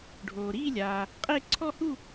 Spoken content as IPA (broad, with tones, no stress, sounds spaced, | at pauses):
ɖʱ oː˨ ɾ iː˥˧ lʲ aː˨ | qʼ e˥˧ ǀʰ ɔ˥˧ h u˥˧